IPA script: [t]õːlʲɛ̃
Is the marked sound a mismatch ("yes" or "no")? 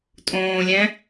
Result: yes